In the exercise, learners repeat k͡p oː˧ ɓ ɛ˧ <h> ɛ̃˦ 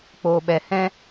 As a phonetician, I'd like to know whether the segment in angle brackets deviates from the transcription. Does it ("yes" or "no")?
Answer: no